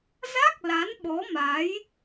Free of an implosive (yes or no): no